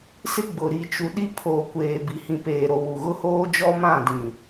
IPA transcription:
s ɪ˦ ɡ͡b ʊ˨ ɾ i˨ t͡ʃ u˨ ɗ i˦ pʰ oː˨ kʷ eː˨ b i˨ h ĩ˨ p eː˨ ɾ o˨ w u˨ ɣ ʊ˦ h oː˦ d͡ʒ ɔ˦ m ã˦˨ d ĩ˨

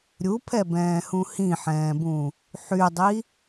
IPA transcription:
ɾʲ u pʰ ɛ b ɛ̃ː h ũ h ĩ ħ ɛ̃ː b ũ | ħ y dˤ i

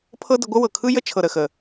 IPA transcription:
pʰ ɤ˦ d ə˧ ɡʷ ə˦ w ɤ˨ kʰ ɯ˦ j ə˦ t͡ʃʰ ɤ˨ ɾ ə˨ x ə˨

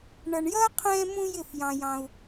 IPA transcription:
ɳ ʌ˧ ɳ j ʌː˥ qʰ ɛ̃ː˥ m ũ˥ j ɪ˥˨ f j ɑ̃˧ j ɑ̃˧ u̯

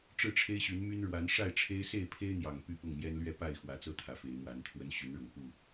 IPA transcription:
ʈ͡ʂ ɻ̩˥˨ ʈ͡ʂʰ e˦ ɪ̯ ɕ y˨˦ n m y˦ n ɻ w a˨˦ n ʂ a˥˨ ɪ̯ ʈ͡ʂʰ e˦ ɪ̯ s e˥˨ ɪ̯ pʰ e˦ ɪ̯ n̪ j ɑ˨˩ ŋ p y˥˨ p ʊ˥˨ ŋ m j ɛ˦ n l ɥ ɛ˥˨ p a˥˨ ɪ̯ x w ä˨˦ t͡s ɤ˥˨ t̪ʰ ä˨˦ f e˨˦ ɪ̯ m w a˨˦ n t̪ʰ w ə˦ n ɕ y˨˦ n ɻ ʊ˨˩ ŋ p u˥˨

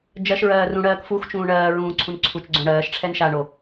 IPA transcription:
d͡ʒ ɜ ʃ ɹ ɜː r ũ ɽ ɜː k f u x t͡ʃ ũː ɳ ɜː ɹ ũː ǀʰ ũ n ǀʰ u t͡ʃ ɡ͡ǀ õ ɽ ɜː ʃ ʈ͡ʂʰ ɛ n ʃ a ɳ o

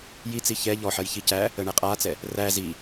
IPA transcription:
j i t͡s i ç ɛ ʎ ɔ ħ ɜ j ç i c æ | ə ɳ ɛ qʼ a t͡s ɛ | r æ z i

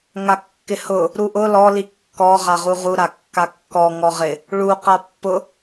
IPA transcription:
ŋ a kː ɪ h ʊ | ɾ u ʔ ʊ l ɔ l i kː ɔ ʁ a ʁ u ʁ u ɾ a kː a kː ɔ ŋ ɔ ʁ ɪ | ɭ u q a pː ʊ

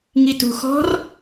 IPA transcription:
ŋ i t ṳ x ɔ̤ r

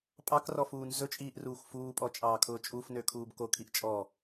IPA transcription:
pʼ ɑ k r ɔ f uː n z ɵ t͡ʃʼ iː ʔ r uː xʷ f uː pʼ ɔ t͡ʃʼ ɑː kʰ ʊː t͡ʃʼ u f n ø kʰ uː b k o kʰ i ʔ t͡ʃʼ ɔ

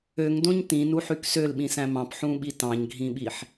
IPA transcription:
ø ŋ d õ ɲ t ĩ n u ħ y k s ø l ɓ ĩ s æ̃ m ɑ̃ p ħ ũ ɓ i t ɑ̃ ɲ ɡʱ ĩ ɓ i ħ

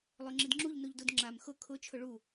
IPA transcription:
lˠ ø ŋ͡ǁ i d ŋ͡ǁ u ʎ n u ʎ d u d ŋ͡ǁ a m x ʊ kʰ ʊ t͡ʃʰ ʊ ɭ u

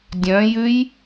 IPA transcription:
dʲ œ̃ j ʉ j

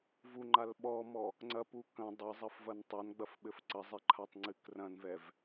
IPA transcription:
v u ŋ͡ǃ a l ɓ ɔ m ɔ | ŋ͡ǀ ɐ p u k ɐ̃ dˤ e zˤ ɐ f v ɐ n tˤ a n ɡ͡b ɐ f ɓ ɘ f ǀ ɐ zˤ e ǃʰ a tˤ ŋ͡ǀ ɨ k r ɐ̃ n v ɛ v

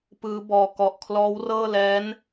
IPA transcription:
p ɯː˦˥ b ɔː˧ k ɔ˨˩ ʔ kʰ l ɔː˦˥ w r ɤː˥˩ l ɛː˦˥ n

